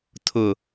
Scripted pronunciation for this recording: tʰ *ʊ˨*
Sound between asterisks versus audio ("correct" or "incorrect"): correct